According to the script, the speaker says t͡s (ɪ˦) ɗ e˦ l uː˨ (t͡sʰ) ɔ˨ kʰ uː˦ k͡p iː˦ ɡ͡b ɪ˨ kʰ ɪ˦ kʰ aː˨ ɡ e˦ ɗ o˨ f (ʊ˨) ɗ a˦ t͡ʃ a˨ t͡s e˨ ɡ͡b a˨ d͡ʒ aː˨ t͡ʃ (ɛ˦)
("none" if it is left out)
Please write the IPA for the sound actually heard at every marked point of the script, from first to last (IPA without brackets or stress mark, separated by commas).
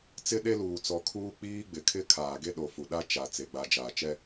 ɪ˦, t͡s, u˨, ɛ˦